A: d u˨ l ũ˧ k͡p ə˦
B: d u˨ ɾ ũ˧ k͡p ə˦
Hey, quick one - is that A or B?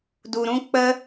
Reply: B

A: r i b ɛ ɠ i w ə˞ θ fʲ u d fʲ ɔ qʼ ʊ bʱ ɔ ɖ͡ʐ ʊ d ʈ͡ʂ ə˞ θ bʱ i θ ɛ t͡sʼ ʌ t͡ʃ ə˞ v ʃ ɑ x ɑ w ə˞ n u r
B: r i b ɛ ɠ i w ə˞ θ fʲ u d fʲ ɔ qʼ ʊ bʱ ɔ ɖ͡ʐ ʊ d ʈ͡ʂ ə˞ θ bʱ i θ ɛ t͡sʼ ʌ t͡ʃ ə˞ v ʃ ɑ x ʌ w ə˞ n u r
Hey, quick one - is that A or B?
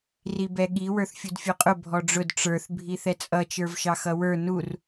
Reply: B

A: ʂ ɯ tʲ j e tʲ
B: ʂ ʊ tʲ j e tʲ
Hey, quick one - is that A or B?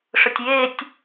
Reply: B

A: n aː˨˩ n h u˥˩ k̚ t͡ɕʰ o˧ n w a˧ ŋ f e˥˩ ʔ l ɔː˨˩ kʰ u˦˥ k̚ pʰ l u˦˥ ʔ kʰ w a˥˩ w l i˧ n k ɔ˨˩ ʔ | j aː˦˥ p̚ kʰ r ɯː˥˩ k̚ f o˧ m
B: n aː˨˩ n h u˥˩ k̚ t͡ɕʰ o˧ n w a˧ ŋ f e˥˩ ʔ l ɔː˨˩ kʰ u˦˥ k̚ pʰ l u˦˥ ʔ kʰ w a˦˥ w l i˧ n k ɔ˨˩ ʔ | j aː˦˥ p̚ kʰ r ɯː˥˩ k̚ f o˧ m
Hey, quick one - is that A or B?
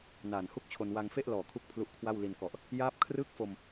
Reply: A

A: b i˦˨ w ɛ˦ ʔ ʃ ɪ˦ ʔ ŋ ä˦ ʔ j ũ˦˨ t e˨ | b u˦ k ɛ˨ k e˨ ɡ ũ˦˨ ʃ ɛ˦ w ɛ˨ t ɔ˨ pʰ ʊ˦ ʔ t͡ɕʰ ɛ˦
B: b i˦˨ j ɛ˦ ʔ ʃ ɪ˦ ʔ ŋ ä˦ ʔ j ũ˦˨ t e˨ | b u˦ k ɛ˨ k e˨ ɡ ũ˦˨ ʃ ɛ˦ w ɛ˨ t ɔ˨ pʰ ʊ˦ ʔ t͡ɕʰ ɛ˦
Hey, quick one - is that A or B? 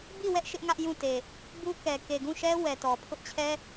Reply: A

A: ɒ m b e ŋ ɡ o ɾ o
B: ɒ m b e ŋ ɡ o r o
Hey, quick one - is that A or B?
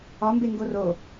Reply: B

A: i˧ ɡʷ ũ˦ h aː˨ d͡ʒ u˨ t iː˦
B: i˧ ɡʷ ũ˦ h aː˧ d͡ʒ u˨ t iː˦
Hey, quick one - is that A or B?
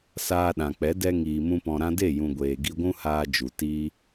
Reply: B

